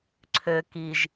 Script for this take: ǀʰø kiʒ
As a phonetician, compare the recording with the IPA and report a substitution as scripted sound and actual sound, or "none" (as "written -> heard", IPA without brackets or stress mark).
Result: none